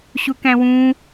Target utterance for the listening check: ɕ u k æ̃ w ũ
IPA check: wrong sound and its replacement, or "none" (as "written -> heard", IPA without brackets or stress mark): none